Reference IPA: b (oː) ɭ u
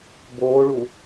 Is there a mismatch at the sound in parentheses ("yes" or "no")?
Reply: no